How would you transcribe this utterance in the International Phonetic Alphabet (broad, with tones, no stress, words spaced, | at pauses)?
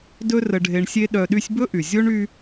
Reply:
dɵ˦rə˨ɖʱe˨ɳsʲe˦ ɗœ˨ ɗy˦sʲbɵ˥ʔy˩ zʲo˥ɳy˦